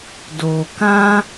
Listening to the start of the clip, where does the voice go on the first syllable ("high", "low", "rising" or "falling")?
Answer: low